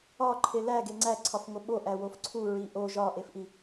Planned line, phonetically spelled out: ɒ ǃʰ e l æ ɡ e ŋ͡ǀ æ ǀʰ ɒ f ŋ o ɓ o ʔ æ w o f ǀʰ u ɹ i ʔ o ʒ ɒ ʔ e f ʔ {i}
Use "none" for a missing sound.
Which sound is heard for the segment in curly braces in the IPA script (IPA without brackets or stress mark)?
i